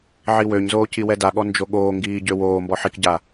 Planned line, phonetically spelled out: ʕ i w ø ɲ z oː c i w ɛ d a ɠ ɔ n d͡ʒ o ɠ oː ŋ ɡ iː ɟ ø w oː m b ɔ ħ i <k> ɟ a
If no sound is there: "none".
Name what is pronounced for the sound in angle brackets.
k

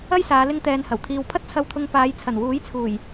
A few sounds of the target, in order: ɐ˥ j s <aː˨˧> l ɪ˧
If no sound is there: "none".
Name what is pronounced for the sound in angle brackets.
aː˨˧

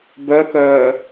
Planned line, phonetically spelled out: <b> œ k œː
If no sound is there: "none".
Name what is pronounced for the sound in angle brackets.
b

